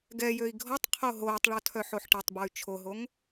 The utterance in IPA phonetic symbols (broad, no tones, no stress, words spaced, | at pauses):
ɡɛjøi̯ ɡʱɔtˤqʰo ɦoːtˤɭɔ tʰœħoħʈitˤbɔy̯ t͡ʃʰoɦoŋ